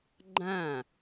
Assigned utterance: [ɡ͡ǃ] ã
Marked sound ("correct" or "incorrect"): correct